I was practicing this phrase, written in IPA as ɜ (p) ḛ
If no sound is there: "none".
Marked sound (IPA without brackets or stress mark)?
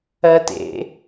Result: t